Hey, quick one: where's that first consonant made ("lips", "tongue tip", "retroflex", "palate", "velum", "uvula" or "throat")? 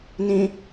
tongue tip